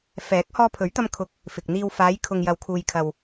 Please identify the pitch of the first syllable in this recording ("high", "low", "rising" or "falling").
rising